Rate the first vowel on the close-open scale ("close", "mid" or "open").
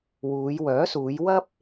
close